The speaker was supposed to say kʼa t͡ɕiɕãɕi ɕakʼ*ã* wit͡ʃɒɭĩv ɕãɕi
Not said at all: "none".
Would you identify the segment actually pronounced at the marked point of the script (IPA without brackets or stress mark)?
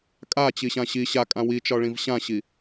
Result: ã